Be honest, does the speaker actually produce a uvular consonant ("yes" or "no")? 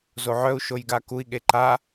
no